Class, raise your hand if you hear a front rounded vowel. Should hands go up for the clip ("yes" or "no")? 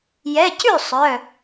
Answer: yes